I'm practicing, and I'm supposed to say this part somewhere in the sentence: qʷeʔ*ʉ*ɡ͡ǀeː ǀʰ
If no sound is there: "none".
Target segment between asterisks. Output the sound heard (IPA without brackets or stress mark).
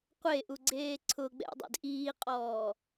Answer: u